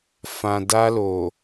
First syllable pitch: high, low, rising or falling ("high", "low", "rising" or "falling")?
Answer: low